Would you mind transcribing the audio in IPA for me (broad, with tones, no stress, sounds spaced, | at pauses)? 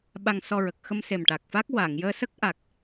ɓ a˧ ŋ s ɔ˧ ɹ ə˨˩ k̚ x ə˧ m s e˨˩ m ʈ a˨˩ k̚ f a˦˥ k̚ w a˨˩˨ ŋ j əː˧ s ə˦˥ k̚ ʔ a˨˩ k̚